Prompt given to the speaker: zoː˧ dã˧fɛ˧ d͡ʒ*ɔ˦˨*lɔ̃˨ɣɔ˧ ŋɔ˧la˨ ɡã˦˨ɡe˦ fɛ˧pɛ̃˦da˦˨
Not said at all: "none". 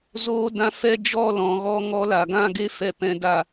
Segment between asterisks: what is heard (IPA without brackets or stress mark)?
ɔ˦˨